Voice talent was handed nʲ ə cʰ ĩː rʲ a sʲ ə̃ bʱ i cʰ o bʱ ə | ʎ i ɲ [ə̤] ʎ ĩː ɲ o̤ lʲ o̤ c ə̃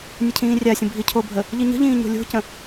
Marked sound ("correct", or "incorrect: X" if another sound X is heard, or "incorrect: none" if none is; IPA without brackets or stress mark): correct